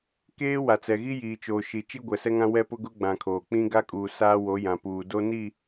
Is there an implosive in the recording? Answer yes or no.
no